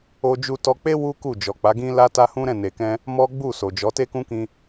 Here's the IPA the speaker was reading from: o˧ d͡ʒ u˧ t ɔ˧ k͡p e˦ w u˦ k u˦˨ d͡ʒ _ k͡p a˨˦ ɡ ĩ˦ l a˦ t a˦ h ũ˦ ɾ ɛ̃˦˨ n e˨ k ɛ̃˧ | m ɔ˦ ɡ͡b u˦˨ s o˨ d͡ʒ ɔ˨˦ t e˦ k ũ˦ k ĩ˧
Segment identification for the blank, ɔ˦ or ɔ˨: ɔ˨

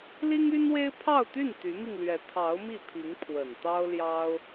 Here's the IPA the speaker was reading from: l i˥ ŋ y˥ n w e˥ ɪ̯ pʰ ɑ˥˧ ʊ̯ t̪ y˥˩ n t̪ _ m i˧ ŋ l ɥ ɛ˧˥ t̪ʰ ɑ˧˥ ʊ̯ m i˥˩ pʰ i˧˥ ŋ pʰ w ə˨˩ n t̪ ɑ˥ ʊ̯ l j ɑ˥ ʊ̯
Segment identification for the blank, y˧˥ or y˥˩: y˧˥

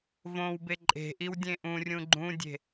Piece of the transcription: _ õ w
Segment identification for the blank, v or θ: v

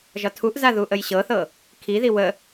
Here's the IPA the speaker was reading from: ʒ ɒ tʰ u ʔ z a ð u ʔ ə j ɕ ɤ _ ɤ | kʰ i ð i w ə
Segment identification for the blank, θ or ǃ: θ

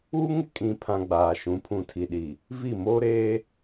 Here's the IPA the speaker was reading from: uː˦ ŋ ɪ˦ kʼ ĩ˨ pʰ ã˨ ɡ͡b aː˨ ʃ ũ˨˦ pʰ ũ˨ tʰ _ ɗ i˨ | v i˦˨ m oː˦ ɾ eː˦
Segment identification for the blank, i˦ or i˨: i˨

